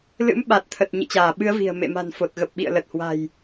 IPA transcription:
lɨ̰˧˥mɓa˨˩t̚t̪ʰə˨˩t̚ ɲɨ̰˧˨t͡ɕaː˧˩ɓɨ˨˦ə̯ vi̤˨˩ə̯ mḛ˧˨ma̤˨˩n fo˨˩t̚ ɣə˨˩p̚ɓḭ˧˨ə̯lə˨˩t̚hwa̤˨˩j

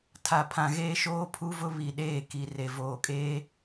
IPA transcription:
tʰa˨pʰã˨ɣeː˦ ʃoː˦pʰu˦vʊ˦ βi˨ɗeː˦˨ki˨ re˨voː˨kʼeː˦

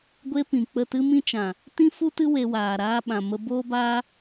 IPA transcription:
ɡʷe˧ pĩ˨k͡pə˦˨ tɨ˧mĩ˧ t͡ʃã˨ | tĩ˦fu˦tɨ˦ we˧ waː˨ɾaː˧ɓã˨ mə˧boː˦baː˦

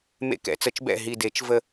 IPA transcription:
mḛ˥˩kɛ̰˨˩˦t͡sə˨˩˦t͡ʃbɛ̰˥˩ ɦi˧˩de˨˩˦t͡ʃ və˥˩

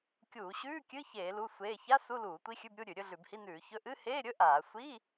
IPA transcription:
kʲuː˧˩˧ɕʉː˧˥˧kʲɨ˧˥˧ çeː˧˩˧ lu˧˥˧ sʷeː˧˥˧ ça˧˥˧ su˧˥˧luː˧˩˧ tʷi˧˥˧xʲʉ˧˥˧bɾʲu˧˥˧ ɾʲʉ˧˩˧ɾʲɵ˧˥˧ɮʉ˧˩˧bhi˧˥˧ nʉː˧˩˧ çɵ˧˥˧ ʔɨ˧˥˧heː˧˥˧ɾʲɵ˧˥˧ ʔaː˧˩˧ sʷi˧˥˧

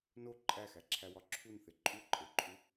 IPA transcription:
no ǃʼæxæǁʰæwɒ ǁʰunθe ǃʼuǃʼeǃʼu

